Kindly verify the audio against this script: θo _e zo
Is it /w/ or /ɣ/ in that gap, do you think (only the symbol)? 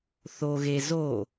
ɣ